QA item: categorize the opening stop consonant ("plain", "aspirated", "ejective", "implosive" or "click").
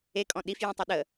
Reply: ejective